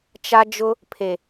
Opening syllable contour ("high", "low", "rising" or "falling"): high